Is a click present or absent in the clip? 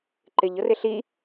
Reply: present